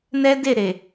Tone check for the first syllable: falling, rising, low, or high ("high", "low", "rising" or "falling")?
high